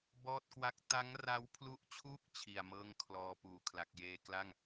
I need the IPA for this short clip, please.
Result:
b ɔː˥˩ t̚ k w a˥˩ k̚ t a˦˥ ŋ r a˦˥ w pʰ l u˦˥ ʔ t͡ɕʰ uː˥˩ k̚ t͡ɕʰ i˨˩ a̯ m ɤː˥˩ ŋ kʰ l ɔː˧ p uː˨˩ kʰ l a˨˩ k̚ j eː˧ k l a˥˩ ŋ

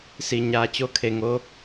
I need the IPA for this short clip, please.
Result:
s i˧˩ ɲ aː˧ t͡ɕ o˧˥ kʰ e˧˩ ŋ o˧

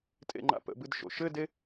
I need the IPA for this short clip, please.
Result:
tʼ ḛ ŋ͡ǃ a̰ p ə̰ b ɨ d ʃ o̰ ʃ ɘ d e

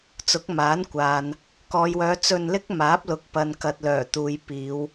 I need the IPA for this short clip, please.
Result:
t͡s ʊ˨˥ k̚ m aː˨˥ n kʷ aː˨ n | k ɔː˨ j w œː˨˧ t͡s ɵ˧ n l ɪ˥ k̚ m aː˨˥ p̚ l ʊ˨ k̚ p ɐ˨ n k ɐ˨ t̚ l œː˨˩ t̪ uː˨˧ j p iː˨˧ w

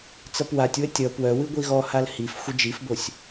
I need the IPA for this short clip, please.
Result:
t͡s ʌ p w a tʲ w ə tʲ ʌ p w œ w ɨ ɡʷ i ɣ ɔ h a l h i f xʷ ə d͡ʒ i f b o sʲ

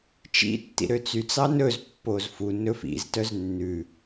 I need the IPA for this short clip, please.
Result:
t͡ʃ ḭ tː ḭ ɾ ø t͡s y t͡s ɑ n ɵ z pː o z f u n ɵ f ḭ z t œ z nː ʉ

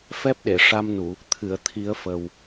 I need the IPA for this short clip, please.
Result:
f ɛ˦˥ p̚ ɗ e˨˩˨ ʂ a˧ m n u˨˩˨ | t̪ʰ ɨ˨˩˨ ə̯ t̪ʰ i˨˩˦ ə̯ f ə˨˩ w

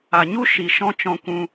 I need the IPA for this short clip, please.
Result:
a˨ ɲ u˦ ʃ i˨ ʃ ɔ̃˧ t͡ʃ ɔ̃˧ kʷ ũ˧

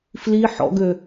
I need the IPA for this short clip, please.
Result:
f l i ħ ɔ̰ ɡ ø

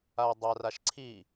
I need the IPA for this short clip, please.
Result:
a o̯ dˤ a r a ʃ ǀʰ i

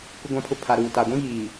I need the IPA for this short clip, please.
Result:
k ʊ˨ ɡʷ ã˨ pʰ ʊ˨ pʰ a˨ ɾ uː˨ t a˨ ɡʷ ĩ˦ ɣ iː˨

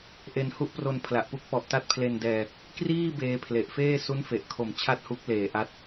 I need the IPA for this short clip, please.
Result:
ʔ e˧ n h u˦˥ ʔ p r o˧ n pʰ l a˨˩ ʔ p u˦˥ k̚ p ɔ˨˩ ʔ t a˦˥ t̚ pʰ l e˧ n d ɛː˧ | k r iː˥˩ b eː˧ pʰ l e˨˩ ʔ f eː˥˩ s u˦˥ n f e˨˩ ʔ kʰ o˨˩ m t͡ɕʰ a˥˩ t̚ h u˦˥ k̚ l eː˨˩ ʔ a˦˥ t̚

